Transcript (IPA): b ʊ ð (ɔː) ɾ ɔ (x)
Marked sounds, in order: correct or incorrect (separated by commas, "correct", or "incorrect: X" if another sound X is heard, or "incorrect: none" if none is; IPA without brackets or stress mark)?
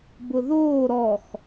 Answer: incorrect: oː, correct